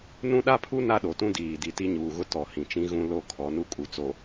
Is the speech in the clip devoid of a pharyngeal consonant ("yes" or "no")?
yes